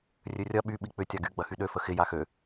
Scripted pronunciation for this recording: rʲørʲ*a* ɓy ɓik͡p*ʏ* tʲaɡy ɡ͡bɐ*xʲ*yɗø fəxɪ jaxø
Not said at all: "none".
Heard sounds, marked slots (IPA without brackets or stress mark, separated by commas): ɐ, ʏ, x